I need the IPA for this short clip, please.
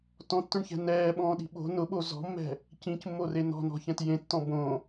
t ɔ̃ tː ʊ ɳ ç ɛ̤ n ɛː ɓ ɔ̃ː ɗ i̤ ɓ o̤ n ʊ ɓ o z ɔ̤ mː ɛ̤ | c ĩ c mː o r e n ɔ̤ n ɔ̤ ç ɛ̃ t j ẽ tː ɔ̃ b õ

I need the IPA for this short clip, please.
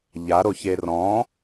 ʎ a ɾ o ç e r ɔ̃

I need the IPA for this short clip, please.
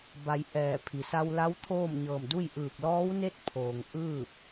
b a˩˧ j ʔ ɛː˧˩ pʰ i˩ s a˧ w l a˧˥ w t̪ʰ oː˥˨ m ɲ ɤː˧˩ m d u˥˨ j ʔ ɯː˧˩ k̚ l ɔː˧˥ w n e˥˨ t̚ pʰ oː˩ ŋ ʔ ɯː˥˨ p̚

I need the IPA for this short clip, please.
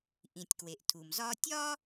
ʔ ĩ˩ tʲ k w e˩ ʔ tʰ u˩ m z ɒ˥ tʲ ɒ˥

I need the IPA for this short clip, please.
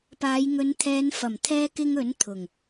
p aː˨˧ j ŋ ɵ˨˧ n t̪ʰ ɛː˨˧ n f ɐ˨˩ m t̪ʰ ɛː˧ k ɪ˧ ŋ ɵ˨˥ n t̪ʰ ʊ˨˩ ŋ

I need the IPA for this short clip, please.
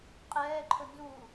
qʼ ɛː ǃʰ ɵ n z u

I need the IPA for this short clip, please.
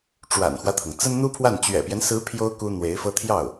ʈ͡ʂ w a̰˨˩ n x w ä˦ t̪ʰ ɤ˩ ŋ t͡s ə˥ n n̪ u˥ pʰ w a˥˩ n t͡ɕ ɥ ɛ̰˨˩ p j ɛ˦ n s ɹ̩˧˥ pʰ j o˥ ʊ̯ k u˥ n̪ w e˧˥ ɪ̯ f ɤ˥ t̪ʰ j ɑ˥˩ ʊ̯

